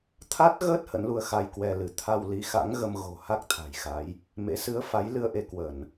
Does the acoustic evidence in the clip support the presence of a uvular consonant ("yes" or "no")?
no